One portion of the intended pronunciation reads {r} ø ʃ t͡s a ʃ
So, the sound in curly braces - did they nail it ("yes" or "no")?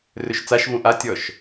yes